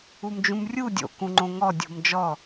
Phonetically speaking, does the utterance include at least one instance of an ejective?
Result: no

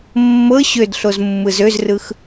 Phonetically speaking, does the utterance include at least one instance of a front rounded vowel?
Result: yes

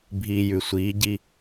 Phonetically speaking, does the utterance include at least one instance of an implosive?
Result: no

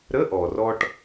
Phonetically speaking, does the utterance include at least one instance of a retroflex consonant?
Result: yes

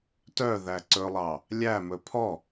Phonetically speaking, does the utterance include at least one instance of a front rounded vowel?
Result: yes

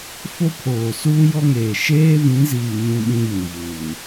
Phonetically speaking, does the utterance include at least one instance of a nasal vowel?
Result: yes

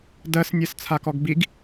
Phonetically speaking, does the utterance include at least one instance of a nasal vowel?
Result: no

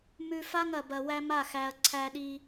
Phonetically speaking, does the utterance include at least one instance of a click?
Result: yes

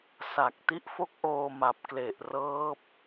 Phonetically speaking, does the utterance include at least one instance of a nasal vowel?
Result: no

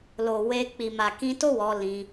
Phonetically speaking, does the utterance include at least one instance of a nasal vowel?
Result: yes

